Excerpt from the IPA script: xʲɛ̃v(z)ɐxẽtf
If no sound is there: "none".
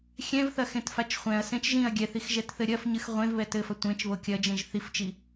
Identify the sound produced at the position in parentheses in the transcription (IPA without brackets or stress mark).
θ